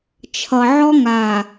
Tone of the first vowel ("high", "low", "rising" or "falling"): low